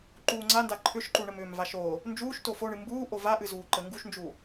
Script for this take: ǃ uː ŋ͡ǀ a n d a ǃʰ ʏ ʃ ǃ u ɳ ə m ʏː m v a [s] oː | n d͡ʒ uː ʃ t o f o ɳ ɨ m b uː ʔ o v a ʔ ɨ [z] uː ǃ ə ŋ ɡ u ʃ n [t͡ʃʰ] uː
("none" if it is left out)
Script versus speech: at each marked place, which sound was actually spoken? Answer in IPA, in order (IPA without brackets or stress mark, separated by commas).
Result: ʃ, z, d͡ʒ